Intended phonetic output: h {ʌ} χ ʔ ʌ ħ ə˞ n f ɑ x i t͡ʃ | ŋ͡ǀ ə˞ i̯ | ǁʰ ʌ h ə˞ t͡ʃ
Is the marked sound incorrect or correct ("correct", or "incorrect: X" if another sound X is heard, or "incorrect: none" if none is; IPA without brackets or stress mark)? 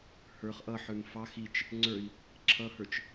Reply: incorrect: ə˞